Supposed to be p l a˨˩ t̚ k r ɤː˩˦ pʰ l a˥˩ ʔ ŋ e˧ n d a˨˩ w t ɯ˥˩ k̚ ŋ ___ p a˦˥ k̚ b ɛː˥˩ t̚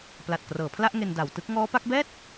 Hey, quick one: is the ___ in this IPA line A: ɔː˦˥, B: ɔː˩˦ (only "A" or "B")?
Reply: A